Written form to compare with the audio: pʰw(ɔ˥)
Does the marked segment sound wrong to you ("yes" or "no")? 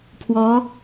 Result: yes